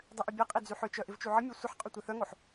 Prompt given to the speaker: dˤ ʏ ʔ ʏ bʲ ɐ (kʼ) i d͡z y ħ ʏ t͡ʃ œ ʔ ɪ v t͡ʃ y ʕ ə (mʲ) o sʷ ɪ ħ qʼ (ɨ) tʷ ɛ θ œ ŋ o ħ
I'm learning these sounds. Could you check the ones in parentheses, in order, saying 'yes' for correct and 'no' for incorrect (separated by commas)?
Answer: no, yes, no